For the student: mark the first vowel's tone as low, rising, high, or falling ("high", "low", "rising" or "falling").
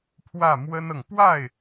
falling